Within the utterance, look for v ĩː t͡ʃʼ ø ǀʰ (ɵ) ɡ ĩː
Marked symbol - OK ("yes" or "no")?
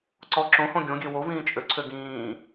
no